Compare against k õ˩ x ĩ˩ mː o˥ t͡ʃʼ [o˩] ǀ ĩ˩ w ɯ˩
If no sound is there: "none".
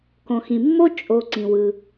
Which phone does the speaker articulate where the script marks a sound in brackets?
o˩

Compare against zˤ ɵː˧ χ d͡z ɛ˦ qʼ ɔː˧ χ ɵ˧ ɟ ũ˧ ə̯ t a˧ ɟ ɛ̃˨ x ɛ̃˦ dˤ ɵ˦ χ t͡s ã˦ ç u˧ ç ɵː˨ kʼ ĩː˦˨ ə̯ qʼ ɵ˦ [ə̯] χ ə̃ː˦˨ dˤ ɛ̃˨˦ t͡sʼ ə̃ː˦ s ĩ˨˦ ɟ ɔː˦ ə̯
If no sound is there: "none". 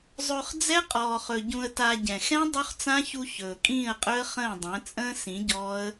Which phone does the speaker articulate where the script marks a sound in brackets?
ə̯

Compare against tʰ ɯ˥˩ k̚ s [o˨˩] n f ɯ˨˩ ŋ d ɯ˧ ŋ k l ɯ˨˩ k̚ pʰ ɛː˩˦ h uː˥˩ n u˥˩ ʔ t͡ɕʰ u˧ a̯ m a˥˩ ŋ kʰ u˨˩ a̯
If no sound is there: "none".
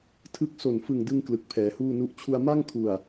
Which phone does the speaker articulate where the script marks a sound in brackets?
o˨˩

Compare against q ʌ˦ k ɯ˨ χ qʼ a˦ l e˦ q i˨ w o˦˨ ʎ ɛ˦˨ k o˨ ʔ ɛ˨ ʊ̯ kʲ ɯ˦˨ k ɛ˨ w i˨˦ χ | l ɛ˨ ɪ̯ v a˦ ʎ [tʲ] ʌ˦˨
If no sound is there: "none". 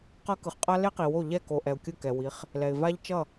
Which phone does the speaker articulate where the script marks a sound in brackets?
t͡ʃ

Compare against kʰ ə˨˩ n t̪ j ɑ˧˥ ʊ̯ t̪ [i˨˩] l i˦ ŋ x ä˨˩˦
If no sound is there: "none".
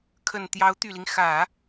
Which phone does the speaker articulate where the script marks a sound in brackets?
y˨˩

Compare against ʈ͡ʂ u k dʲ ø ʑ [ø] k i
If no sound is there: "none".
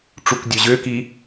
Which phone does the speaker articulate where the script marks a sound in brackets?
ø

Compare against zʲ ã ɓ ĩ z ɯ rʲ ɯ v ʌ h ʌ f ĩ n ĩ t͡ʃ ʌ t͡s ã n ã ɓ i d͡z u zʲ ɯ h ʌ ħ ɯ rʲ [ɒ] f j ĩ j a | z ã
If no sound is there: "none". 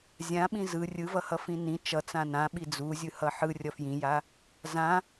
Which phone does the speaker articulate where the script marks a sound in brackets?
ʌ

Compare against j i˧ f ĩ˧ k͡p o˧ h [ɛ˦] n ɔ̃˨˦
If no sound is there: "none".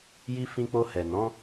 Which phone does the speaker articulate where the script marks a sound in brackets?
ɛ˨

